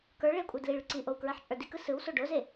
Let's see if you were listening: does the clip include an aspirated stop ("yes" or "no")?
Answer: no